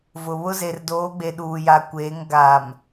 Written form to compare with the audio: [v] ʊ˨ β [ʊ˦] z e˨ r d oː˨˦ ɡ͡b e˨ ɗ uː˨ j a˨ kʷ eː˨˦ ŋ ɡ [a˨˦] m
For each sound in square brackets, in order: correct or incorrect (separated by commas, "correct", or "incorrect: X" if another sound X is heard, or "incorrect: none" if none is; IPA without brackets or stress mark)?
correct, correct, incorrect: a˨